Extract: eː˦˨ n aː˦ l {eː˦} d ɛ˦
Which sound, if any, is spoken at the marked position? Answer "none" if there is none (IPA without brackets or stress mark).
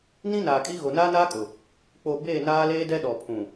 eː˦